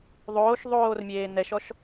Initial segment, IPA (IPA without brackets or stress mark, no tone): ðˤ